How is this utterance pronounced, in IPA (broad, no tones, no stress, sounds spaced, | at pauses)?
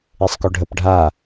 e sˤ k o ɖʱ ə p ɖʱ a